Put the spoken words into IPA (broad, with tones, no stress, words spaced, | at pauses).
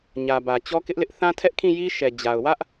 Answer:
ɲä˨ bä˨t͡ɕɔ˦kɪ˦ʔlɪ˦ʔ θã˦tʰɛ˦ʔkʰĩ˦˨ji˦ ʃɛ˨ d͡ʑa˨ʊ̯ wä˦ʔ